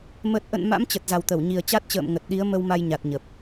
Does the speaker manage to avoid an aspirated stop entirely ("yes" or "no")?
yes